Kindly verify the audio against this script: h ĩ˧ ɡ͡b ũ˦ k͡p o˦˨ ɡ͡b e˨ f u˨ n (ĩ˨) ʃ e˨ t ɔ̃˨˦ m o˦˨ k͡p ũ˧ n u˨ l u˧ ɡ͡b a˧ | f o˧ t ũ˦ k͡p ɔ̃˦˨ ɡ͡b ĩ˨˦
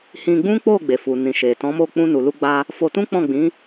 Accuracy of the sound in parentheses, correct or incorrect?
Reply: correct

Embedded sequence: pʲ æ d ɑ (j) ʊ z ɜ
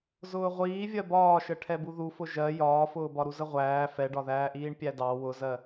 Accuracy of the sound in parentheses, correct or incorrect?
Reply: incorrect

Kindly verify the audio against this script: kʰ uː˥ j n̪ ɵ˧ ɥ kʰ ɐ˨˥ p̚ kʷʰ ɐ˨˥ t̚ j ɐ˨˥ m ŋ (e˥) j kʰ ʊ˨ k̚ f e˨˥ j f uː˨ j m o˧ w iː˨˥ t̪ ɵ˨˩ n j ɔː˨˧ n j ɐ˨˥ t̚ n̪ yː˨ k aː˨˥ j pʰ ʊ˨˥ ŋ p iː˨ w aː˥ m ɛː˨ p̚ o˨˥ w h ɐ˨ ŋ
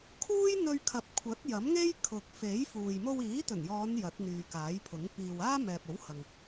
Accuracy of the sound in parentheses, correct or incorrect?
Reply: correct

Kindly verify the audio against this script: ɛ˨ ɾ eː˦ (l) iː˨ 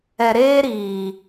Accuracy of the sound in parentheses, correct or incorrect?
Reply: incorrect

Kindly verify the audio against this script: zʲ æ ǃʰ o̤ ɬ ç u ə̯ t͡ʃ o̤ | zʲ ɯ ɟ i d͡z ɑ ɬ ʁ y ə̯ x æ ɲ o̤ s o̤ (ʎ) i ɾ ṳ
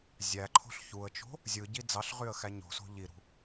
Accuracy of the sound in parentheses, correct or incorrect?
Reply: correct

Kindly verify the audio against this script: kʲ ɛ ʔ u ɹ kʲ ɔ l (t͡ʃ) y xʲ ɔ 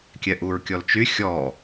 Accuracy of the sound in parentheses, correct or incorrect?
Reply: correct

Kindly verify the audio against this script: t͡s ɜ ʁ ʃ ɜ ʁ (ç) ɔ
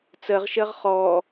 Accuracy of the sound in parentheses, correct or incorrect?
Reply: incorrect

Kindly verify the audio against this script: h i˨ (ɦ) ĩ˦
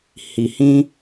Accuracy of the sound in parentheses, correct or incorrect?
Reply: incorrect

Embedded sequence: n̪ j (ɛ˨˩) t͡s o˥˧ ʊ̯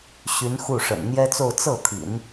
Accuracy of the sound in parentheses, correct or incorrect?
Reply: incorrect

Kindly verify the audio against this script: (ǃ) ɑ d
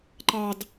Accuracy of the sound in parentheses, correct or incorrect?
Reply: correct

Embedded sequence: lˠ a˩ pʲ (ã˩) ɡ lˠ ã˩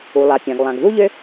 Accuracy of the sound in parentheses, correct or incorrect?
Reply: correct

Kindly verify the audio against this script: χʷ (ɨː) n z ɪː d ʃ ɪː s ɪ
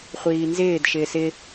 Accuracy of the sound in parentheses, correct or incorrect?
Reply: incorrect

